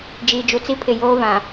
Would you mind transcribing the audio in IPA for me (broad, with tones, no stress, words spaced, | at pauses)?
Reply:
d͡ʒiː˨d͡ʒu˨t͡si˦pʰɪ˨ joː˦vã˨